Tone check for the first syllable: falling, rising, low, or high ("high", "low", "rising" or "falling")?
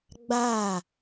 falling